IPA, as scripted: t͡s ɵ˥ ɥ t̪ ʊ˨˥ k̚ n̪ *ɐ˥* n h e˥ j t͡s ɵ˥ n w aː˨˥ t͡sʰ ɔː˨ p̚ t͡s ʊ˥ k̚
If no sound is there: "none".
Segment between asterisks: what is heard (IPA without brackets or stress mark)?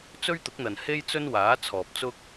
ɐ˨